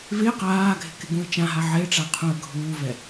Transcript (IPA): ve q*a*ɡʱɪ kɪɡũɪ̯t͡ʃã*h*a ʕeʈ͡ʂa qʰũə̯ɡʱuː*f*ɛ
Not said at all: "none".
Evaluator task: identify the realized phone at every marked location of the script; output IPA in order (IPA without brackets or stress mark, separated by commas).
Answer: aː, ɦ, v